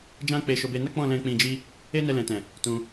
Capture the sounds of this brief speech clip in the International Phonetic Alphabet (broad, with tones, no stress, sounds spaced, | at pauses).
d͡ʒ ã˦ k͡p e˧ ʃ o˧ b e˧ n a˦ k͡p ɔ̃˦˨ l ɛ̃˧ k͡p ĩ˧ d͡ʒ i˦ | e˦ n ɛ˧ l ɛ̃˨ t ɛ̃˨ | t ũ˧